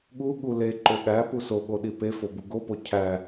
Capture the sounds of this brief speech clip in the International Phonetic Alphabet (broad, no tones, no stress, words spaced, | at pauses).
ɠuɠu le ǃoɠæpu soɠo ɗipefo buɡopo cʰæ